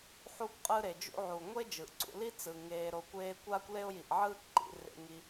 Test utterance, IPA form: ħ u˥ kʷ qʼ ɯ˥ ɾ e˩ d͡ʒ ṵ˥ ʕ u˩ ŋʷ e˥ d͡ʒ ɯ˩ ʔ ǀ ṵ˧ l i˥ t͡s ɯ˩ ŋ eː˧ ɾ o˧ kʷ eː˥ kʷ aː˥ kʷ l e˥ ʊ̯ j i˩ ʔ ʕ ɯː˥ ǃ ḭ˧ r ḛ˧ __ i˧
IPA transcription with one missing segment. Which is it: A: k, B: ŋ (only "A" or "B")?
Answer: B